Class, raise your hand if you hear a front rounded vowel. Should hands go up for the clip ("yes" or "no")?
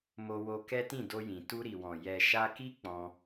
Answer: no